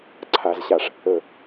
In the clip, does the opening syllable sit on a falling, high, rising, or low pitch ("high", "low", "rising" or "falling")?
low